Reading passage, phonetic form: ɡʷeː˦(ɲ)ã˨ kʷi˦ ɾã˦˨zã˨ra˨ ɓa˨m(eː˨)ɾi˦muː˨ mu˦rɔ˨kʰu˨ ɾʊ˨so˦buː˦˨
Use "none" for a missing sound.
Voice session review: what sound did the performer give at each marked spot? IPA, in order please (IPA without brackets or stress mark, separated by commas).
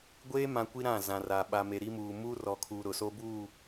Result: m, e˨